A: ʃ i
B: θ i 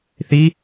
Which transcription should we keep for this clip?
B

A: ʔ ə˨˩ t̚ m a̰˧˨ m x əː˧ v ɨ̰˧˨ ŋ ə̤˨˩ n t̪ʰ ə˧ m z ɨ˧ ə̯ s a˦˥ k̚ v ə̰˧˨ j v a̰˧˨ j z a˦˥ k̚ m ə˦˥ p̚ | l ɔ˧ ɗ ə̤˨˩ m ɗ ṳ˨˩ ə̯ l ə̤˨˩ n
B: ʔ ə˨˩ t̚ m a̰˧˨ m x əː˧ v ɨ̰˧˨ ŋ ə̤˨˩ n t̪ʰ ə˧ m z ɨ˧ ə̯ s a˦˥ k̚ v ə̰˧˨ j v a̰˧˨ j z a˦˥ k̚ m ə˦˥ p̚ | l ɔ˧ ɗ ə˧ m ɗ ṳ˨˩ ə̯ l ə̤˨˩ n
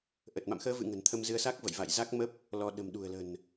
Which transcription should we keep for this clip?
A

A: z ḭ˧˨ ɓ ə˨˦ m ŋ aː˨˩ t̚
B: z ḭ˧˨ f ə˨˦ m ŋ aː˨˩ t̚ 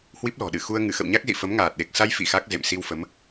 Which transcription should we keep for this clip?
B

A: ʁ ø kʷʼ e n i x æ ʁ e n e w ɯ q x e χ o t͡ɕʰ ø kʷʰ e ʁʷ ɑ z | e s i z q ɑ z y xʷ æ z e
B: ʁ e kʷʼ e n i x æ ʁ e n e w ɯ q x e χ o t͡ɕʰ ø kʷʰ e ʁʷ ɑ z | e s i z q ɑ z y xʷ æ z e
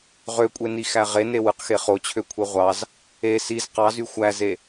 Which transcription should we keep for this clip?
A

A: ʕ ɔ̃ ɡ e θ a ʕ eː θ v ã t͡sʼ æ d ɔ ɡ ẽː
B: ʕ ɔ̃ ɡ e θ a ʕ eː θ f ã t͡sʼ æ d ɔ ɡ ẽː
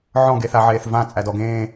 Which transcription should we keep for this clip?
A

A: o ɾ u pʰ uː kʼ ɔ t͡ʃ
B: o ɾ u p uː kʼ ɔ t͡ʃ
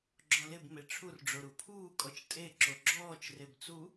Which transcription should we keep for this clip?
A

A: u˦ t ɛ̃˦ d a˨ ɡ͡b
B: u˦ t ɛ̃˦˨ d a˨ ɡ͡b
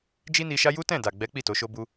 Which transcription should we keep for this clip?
B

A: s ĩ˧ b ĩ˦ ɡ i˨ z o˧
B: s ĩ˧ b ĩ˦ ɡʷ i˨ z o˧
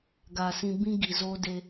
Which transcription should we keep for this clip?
A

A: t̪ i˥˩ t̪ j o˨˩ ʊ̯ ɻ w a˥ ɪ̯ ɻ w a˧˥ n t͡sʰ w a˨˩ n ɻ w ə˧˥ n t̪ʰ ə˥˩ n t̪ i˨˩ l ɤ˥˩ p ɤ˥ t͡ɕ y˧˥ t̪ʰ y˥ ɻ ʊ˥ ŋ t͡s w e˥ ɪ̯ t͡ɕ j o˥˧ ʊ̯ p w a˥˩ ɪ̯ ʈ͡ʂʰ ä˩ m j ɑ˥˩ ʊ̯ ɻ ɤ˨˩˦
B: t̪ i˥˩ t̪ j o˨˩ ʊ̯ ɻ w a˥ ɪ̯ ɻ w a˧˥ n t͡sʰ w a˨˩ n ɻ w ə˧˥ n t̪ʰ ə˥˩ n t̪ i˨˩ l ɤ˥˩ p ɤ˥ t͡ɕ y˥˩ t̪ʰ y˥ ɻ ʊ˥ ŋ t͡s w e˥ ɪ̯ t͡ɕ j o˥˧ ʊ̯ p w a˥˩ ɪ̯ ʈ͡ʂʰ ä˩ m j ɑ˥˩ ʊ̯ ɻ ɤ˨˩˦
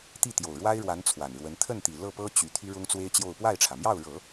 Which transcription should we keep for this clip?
A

